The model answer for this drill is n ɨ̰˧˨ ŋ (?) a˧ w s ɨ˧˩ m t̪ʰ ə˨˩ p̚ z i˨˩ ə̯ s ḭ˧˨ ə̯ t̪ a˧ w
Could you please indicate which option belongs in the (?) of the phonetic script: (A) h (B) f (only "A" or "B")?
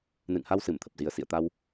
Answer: A